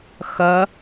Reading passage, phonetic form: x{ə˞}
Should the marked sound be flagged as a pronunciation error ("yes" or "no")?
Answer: yes